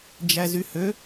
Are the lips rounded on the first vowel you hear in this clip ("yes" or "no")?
no